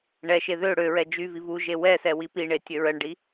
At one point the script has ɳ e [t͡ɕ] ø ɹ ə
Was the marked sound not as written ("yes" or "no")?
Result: yes